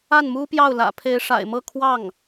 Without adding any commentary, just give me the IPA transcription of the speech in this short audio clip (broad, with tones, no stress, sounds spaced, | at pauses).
a˥˩ n m u˥ p j ɑ˥˩ ʊ̯ l ä̰˨˩ pʰ e˧˥ ɪ̯ ʂ a̰˨˩ ɪ̯ m ɤ˥˧ kʰ w ɑ˥˩ ŋ